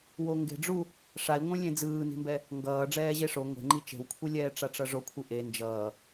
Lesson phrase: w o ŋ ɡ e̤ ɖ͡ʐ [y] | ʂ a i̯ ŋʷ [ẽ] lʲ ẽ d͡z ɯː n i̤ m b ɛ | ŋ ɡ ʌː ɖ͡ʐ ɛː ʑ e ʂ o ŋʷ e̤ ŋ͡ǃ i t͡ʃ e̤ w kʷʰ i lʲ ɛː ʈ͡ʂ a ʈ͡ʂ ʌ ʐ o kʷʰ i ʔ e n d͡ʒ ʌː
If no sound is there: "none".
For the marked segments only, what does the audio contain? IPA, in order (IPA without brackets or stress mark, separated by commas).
u, ẽ